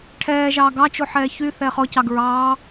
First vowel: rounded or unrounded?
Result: unrounded